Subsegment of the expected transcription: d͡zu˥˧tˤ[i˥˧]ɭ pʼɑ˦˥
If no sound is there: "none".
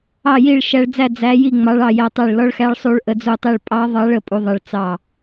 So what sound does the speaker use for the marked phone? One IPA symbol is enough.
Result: i˥˧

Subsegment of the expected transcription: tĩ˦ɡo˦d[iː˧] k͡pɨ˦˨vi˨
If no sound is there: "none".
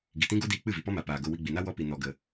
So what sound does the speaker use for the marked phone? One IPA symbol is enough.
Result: iː˧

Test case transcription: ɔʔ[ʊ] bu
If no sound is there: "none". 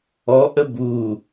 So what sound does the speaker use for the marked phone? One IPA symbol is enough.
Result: ə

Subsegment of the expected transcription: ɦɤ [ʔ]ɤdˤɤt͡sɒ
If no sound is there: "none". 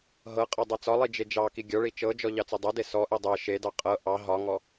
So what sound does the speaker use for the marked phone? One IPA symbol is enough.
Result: qʼ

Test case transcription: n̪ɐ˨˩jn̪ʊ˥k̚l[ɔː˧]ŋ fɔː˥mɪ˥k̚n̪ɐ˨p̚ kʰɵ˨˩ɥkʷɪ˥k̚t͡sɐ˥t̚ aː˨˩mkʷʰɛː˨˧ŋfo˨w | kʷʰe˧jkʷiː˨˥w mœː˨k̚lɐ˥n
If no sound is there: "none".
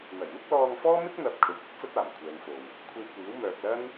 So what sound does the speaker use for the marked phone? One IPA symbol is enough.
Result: ɔː˧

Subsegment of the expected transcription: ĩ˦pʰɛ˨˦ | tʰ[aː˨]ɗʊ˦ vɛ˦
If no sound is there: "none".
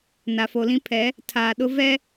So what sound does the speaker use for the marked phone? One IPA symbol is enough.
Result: aː˨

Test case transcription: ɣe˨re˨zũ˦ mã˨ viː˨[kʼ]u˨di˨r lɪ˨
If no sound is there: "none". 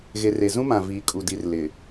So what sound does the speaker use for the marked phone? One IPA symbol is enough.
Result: kʼ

